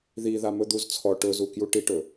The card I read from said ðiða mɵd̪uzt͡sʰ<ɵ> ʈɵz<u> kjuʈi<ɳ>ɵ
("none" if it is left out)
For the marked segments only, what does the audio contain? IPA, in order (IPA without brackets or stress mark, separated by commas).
ɔ, u, ʈ